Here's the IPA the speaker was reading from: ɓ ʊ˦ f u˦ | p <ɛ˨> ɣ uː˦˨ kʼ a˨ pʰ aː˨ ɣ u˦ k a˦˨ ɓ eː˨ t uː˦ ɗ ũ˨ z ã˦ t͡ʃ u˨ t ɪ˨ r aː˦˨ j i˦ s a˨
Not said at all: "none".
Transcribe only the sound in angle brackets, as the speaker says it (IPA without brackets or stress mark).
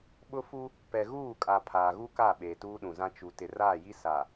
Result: ɛ˨